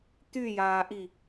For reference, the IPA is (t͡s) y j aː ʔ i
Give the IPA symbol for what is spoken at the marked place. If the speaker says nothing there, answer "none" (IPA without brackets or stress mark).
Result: t̪